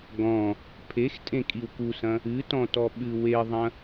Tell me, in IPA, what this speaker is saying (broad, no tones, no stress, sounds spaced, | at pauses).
ɡ ɔ̃ | pʰ e x tʼ ẽ kʼ i w k u s ɐ̃ | ɨ t ɔ̃ t ɔ ɓ ɨ w e ðˤ ɐ̃